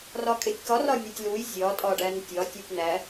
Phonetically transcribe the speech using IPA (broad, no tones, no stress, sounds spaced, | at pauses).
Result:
r ɒ kʼ e tʲ k ɒ r ɒ nʲ o tʲ l u j zʲ ɒ tʼ ɒ ɖ æ n tʲ ɒ tʲ e p n̪ æ